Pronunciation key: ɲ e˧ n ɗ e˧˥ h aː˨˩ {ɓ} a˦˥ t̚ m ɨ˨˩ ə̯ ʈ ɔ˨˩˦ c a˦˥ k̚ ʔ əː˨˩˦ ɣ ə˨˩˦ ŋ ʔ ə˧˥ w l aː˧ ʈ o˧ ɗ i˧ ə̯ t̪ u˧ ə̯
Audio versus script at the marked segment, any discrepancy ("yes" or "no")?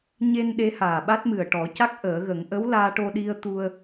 no